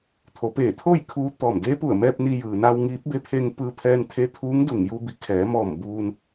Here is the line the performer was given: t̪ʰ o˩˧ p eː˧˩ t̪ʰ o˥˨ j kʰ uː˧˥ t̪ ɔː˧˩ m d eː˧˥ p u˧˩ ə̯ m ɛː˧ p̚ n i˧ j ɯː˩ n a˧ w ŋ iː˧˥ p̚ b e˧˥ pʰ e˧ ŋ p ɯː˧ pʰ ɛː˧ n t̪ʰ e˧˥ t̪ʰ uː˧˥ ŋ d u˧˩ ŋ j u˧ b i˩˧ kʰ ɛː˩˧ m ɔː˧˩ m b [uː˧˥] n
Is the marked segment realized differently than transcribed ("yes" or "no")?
yes